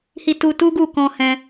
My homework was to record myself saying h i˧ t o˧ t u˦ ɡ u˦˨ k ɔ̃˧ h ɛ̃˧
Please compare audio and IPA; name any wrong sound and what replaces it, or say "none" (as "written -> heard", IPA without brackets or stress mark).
o˧ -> u˧